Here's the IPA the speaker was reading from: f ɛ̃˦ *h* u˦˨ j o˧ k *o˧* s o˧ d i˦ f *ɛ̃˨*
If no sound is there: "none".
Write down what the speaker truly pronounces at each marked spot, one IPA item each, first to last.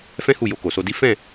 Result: h, o˨, ɛ̃˦˨

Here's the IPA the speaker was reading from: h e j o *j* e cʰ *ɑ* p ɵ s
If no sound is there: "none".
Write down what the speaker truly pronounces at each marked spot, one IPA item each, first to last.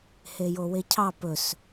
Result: w, ɑ

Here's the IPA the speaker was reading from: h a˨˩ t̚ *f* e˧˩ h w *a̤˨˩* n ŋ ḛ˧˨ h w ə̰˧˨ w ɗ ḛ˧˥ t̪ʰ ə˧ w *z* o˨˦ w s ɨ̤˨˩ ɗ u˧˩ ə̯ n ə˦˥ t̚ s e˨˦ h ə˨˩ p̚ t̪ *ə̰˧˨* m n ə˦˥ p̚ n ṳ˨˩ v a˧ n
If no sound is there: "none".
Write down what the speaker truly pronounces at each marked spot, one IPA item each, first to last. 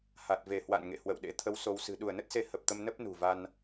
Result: v, a̰˧˨, s, ə˧

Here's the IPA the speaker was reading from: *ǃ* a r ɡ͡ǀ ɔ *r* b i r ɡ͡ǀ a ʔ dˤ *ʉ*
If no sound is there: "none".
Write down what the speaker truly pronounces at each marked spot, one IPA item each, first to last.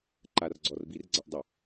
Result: ǃ, r, ʊ

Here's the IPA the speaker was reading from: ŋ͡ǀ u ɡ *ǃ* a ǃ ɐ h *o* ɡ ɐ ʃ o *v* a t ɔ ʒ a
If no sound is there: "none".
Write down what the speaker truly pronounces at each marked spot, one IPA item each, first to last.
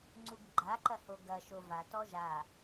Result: ɡ͡ǃ, o, v

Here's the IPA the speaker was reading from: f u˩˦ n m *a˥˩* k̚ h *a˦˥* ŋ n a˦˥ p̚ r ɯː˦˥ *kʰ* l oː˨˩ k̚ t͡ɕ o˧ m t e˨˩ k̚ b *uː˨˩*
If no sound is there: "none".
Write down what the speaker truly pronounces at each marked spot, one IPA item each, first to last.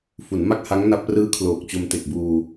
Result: a˥˩, a˦˥, kʰ, uː˧

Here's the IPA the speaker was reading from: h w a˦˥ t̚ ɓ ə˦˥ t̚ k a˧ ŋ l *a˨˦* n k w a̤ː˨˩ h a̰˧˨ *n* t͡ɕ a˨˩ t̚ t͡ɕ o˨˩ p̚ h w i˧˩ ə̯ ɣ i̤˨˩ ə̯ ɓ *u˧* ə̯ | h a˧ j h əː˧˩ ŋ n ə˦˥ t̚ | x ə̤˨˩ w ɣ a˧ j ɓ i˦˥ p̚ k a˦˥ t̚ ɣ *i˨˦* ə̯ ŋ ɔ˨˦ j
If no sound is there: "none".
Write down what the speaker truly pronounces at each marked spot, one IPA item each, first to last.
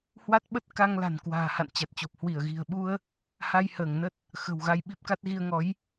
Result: a̤˨˩, n, u˧, i˧

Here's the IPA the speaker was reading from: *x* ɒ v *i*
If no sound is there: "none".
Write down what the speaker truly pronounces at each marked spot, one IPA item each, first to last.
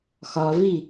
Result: x, i

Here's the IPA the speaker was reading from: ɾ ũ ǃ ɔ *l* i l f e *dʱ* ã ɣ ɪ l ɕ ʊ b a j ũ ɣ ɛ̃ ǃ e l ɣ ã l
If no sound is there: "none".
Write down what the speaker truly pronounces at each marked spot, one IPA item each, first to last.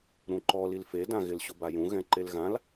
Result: l, d

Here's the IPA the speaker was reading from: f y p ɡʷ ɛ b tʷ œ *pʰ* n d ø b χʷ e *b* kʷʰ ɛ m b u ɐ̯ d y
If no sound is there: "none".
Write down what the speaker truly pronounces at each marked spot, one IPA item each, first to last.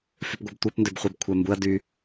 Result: p, b

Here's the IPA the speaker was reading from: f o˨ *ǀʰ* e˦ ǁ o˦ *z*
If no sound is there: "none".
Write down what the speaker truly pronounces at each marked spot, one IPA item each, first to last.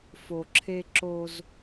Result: ǁʰ, z

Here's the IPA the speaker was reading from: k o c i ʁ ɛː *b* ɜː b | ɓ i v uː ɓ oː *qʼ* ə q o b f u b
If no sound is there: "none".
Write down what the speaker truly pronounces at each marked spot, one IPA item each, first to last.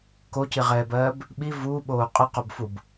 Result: b, qʼ

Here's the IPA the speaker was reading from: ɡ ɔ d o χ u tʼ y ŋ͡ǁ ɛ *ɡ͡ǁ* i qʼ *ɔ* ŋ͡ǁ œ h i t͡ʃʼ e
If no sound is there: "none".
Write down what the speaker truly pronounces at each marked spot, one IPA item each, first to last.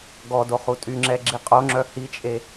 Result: ɡ͡ǁ, o

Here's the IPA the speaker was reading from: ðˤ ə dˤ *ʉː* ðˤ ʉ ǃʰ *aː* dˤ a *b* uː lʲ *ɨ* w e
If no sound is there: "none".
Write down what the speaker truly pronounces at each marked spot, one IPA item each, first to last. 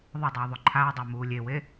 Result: ʉː, aː, m, e

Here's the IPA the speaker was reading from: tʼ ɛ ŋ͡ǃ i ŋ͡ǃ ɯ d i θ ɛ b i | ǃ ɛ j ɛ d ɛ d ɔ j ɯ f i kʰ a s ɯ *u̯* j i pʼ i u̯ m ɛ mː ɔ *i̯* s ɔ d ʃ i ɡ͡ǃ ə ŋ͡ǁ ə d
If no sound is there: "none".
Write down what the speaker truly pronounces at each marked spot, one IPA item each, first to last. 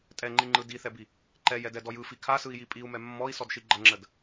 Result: i̯, i̯

